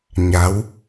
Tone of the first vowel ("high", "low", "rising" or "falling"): rising